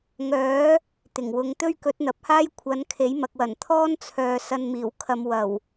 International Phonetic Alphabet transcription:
ŋ œː˨˥ | t̪ ɪ˨˩ ŋ w ʊ˧ ŋ t̪ ɵ˥ ɥ k ɵ˨˥ t̚ n̪ ɐ˨ p̚ h aː˥ j kʷʰ ɐ˨˥ n kʰ e˨˥ j m ɐ˨ k̚ w ɐ˨˩ n t̪ʰ ɔː˥ n t͡sʰ œː˨ s ɐ˧ n m iː˨˩ w kʰ ɐ˨˧ m w ɐ˨˩ w

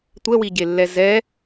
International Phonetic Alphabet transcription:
tʷ ɛ w i ɟ e lː ɛ z ɛ

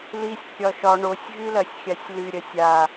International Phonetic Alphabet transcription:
l i sʲ kʲ ɒ ʃ ɒ ɳ o sʲ ɣ y l ɐ sʲ xʲ a sʲ l y ɾʲ ɐ sʲ a

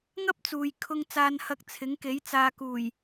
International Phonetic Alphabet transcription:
ŋ ɐ˥ p̚ t͡s uː˨ j kʰ ʊ˧ ŋ t͡s aː˧ n h ɐ˧ k̚ t͡sʰ ɪ˨˥ ŋ k e˨˥ j t͡s aː˨ k uː˨˩ j

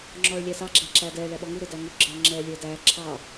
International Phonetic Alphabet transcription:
ŋ͡ǁ ɔː ɭ lʲ æː s ɑ ɡ͡ǁ æ ǁ æː d ɛː ɭ æ ɓ ɔ ŋ u ɾ ʊ d æ ŋ u ɡ͡ǁ ɛː ŋ͡ǁ ɛː lʲ ə˞ d æː ǁʰ ɑ

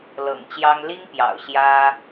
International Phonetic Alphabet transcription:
l ɤ̰˨˩ ŋ t͡ɕ j ɑ˦ ŋ l i˦ ŋ p j ɑ̰˨˩ ʊ̯ ɕ j ä˦

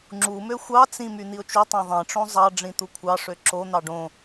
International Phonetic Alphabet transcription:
ŋ͡ǁ u m ø xʷ ɑ t͡s ĩ m y n̪ i ʊ̯ t͡ʃ u tˤ ẽ ðˤ ẽ ʈ͡ʂ õ zˤ ɑ ɖ͡ʐ ĩ t̪ u kʷʰ ɑ ʂ ø ǁ o n̪ ɑ ɖ õ

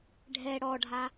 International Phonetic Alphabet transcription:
ɖʱ ɛ ɽ ɔ ɖʱ a

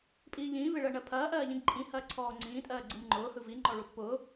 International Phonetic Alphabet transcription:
pʼ iː ʎ ĩː v e ɭ ɜ ɳ ɜ pʰ ɐː ʔ ɜː ʎ ĩ ɡ ǃʼ ĩ h ɐː ǀʰ ɔː ŋ͡ǀ ĩː tʼ ɜː ɡ͡ǀ ɯ m ŋ͡ǃ ʊː h ɯ v i ŋ͡ǃ ɔ ɭ u t p ʊː

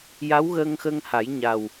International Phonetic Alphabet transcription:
j a˧˥ w ɣ əː˧ ŋ x əː˧ ŋ h a˨˩˦ j ɲ a˨˩ w

